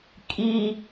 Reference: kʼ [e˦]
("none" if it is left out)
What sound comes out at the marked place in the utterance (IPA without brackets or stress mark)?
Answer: i˦